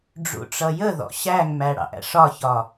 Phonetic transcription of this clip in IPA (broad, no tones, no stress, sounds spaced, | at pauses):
ɖ͡ʐ ṵ ʈ͡ʂ ʌ j ə ð ɔ̰ ɕ æ ŋ m æ ɽ ɑ̰ ʔ æ̰ ʂ ɒ ç ɒ